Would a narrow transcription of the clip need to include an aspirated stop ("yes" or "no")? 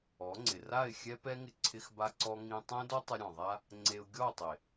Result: yes